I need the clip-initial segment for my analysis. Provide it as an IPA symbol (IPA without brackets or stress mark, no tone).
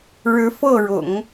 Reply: ɻ